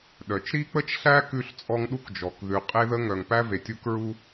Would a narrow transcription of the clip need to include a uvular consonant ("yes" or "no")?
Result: yes